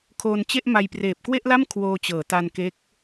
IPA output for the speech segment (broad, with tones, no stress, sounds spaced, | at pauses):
kʰ oː˧ n t͡ɕ e˥˩ ʔ m a˧ j p r eː˨˩ p̚ k w e˥˩ ʔ l a˥˩ m kʰ w oː˧ t͡ɕ ɤː˩˦ t a˧ n k e˦˥ k̚